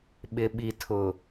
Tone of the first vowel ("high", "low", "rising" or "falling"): low